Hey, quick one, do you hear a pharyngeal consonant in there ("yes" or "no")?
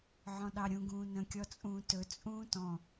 yes